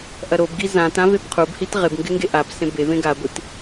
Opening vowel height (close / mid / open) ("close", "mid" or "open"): open